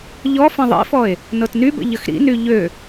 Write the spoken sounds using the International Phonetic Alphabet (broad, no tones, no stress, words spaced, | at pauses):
ʎɔ fɐ̃ðˤḭfɔe̯ | nɤtnybə̰ ʎəxɾḭny ʎø